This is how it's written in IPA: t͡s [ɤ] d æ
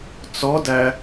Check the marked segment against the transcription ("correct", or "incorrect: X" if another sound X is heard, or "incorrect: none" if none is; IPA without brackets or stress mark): incorrect: ɔ